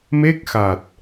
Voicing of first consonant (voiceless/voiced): voiced